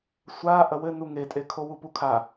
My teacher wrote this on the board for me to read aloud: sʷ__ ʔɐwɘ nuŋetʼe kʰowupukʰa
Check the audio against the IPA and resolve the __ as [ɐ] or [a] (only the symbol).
a